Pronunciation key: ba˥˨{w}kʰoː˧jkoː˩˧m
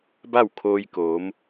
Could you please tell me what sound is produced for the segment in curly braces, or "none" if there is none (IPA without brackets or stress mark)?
w